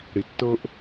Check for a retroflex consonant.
present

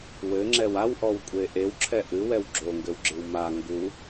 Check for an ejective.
present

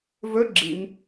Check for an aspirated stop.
absent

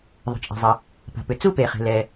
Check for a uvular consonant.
present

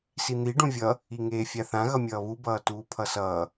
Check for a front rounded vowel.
absent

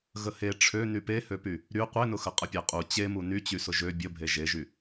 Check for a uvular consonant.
present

